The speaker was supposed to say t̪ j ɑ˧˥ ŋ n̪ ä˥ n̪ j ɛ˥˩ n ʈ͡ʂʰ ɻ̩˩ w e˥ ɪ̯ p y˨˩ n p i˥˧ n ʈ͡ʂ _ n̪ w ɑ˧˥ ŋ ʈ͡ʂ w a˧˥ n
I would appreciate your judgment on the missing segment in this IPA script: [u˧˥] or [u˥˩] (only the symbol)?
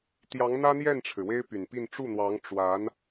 u˥˩